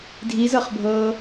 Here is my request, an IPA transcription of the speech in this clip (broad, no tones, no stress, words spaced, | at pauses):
dʱizɤχbʱɤː